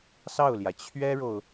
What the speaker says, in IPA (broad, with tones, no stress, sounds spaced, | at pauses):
s ɑ˥˩ ʊ̯ l j ä˩ t͡ɕʰ ɥ ɛ˥ ɻ o˨ ʊ̯